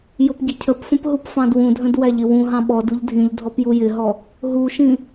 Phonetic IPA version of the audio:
j ʊ p ɟ ɪ cʰ ə p f ə̃ p ɦ u p f ɑ̃ d w ũ dʱ ə̃ d w æ ʎ ɪ w ũ ɦ ɑ̃ ɓ ɔ d u ʎ dʱ ĩ ʎ dʱ ɔ p j u j ɪ ɦ ɔ | ɦ u ʃ ĩ

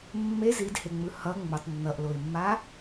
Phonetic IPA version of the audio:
mː e z i d h e ŋ͡m ɯ h ʌ ŋ͡m u tˤ nː ʌ ʔ l o ɪ̯ mː a

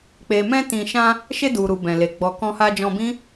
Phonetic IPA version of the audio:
k͡p e˨ m ɛ̃˧ t ĩ˨ ʃ ã˧ | ʃ e˧ d u˨ ɾ u˨ b ɛ̃˨ l e˨ ɡ͡b ɔ˨ k ɔ̃˧ h a˧ d͡ʒ ɔ̃˧ b ĩ˦

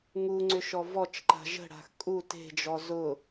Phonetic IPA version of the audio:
ŋ u ŋ͡ǀ ʏ ʃ ɔ v ɔ t͡ʃ ǃ a̤ ʒ ə̤ ɽ a̤ x kʼ u t e̤ d͡ʒ ɔ z ʊ

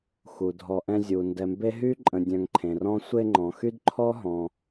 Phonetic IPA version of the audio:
x u˩ dʱ ɔ˨ ʔ ɛ̃˦ zʲ u˩ n d ɛ˨ m b e˥ ɦ y˥ ǃʼ ə̃˨ dʲ œ̃˨ ŋ ǃʰ ẽ˩ r ɔ̃˥ sʷ e˦ ŋ͡ǃ ɔ̃˩ x y˥ d ǃʰ ɔ˥ ɦ ɔ̃˩

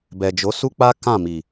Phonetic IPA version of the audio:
b ɛ˨ d͡ʒ o˨˦ s u˦ k͡p a˦ k ã˦˨ m i˨

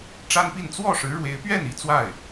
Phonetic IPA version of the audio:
ʈ͡ʂ a˥ n p i˥˧ n t͡s w ɔ˥˩ ʂ ɻ̩˧˥ ɻ w e˧˥ ɪ̯ p ɥ ɛ˥˩ n i˥ t͡s w a˥˩ ɪ̯

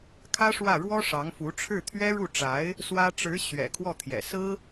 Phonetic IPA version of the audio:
kʰ ä˥ ʂ w ä˥˩ ɻ w ɔ˥ ʂ ɑ˧˥ ŋ f u˧˥ ʈ͡ʂʰ ɻ̩˥˩ t̪ʰ ɥ ɛ˥ ɻ u˥˩ ʈ͡ʂ a˧˥ ɪ̯ | s w ä˥ ʈ͡ʂ ɻ̩˧˥ ɕ ɥ ɛ̰˨˩ kʰ w ɔ˥˩ t̪ʰ j ɛ̰˨˩ s ɹ̩˥

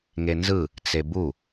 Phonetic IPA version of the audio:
ŋ e n z ɯ | t͡s e b u

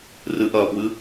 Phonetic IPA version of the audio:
r ɨ ʔ ɐː p w ɨ

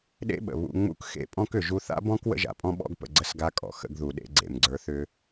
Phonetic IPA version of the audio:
ɗ ḛ˥ ɓ ə̰˩ β ṵ˧ ŋ͡m ṵ˥ k x ḛ˧ pʼ ɔ̃˥ k ʏ˩ ʒ u˧ θ a̰˥ b ɔ̃˥ k w ə̰˥ ʒ a̰˩ pʼ ɔ̃˥ ɓ ɔ̰˥ ɡ p ə̰˧ ɡ͡ǀ ə˧ s ɡ a˧ kʼ ɔ̰˩ x ə̰˧ ɡ ð u˩ ɗ ḛ˧ ɡ͡ǀ ḛ˩ m ɡ͡ǀ ə˞˧ θ ʏ˥

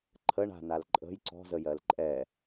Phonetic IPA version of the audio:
ǃʰ ə ɳ a̤ n a l ǃʼ ə̤ j ǀ ɔ̤ z ə j ɜ l ǃʼ ɛ

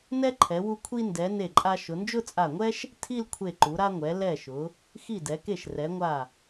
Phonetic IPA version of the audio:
n ɛ˧ ǃʰ ɛ˩˧ w u˧ kʷʰ i˧ n d ɛ˩˧ n e˧˩ ǃʼ a˧ ʃ ʊ˩˧ n d͡ʒ ʊ˥˧ t͡sʼ a˧˩ ŋʷ ɛ˥ ʃ | tʰ i˥˧ l kʷʰ e˧˩ ǃ u˩˧ ɾ a˧ ŋʷ ɛ˩˧ l ɛ˧˩ ʃ ʊ˩˧ | x i˧˩ d ɛ˩˧ k e˧˩ ʃ r ɛ˩˧ ŋʷ a˧˩

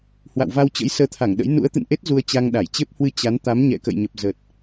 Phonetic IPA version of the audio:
h w a̰˧˨ w v a˧ w t͡ɕ ə̰˧˥ j s əː˨˦ t̪ʰ a˧˩ ŋ ɗ ə̰˧˥ j n ṵ˧˥ ə̯ t̪ ɨ̰˧˨ n ʔ e˦˥ t̚ z u˧ ə̯ t͡ɕ a˧ ŋ ɗ a˧˩ j t͡ɕ e˦˥ p̚ h w ɨ˧ t͡ɕ a˨˦ n t̪ a˨˦ m ɲ ɛ̰˧˨ k ə̰˧˨ j ɲ ə˨˩ p̚ z ə˨˩ t̚

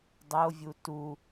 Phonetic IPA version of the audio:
dˤ o vʲ u t u

